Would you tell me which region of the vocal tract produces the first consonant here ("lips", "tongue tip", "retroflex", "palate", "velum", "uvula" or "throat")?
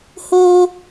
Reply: throat